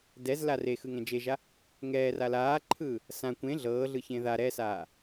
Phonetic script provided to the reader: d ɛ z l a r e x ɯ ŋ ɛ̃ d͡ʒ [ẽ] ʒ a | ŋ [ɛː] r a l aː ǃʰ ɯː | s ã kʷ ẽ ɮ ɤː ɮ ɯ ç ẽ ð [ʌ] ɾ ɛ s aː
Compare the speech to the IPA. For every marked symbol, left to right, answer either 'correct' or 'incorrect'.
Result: incorrect: e, correct, incorrect: a

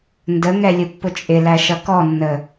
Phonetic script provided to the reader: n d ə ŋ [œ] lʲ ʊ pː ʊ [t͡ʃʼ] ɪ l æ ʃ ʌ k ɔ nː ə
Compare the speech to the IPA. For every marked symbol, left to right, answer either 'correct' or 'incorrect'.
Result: incorrect: ɛ, correct

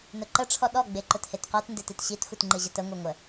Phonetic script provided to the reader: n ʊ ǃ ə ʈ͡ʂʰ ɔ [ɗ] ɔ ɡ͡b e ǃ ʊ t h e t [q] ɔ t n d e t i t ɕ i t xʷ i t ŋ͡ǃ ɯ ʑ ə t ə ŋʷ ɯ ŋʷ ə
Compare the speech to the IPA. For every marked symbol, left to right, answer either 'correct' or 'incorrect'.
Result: correct, correct

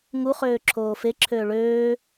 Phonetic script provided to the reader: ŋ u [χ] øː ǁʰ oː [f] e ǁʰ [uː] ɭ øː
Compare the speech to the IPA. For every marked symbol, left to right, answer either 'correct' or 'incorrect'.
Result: correct, correct, incorrect: øː

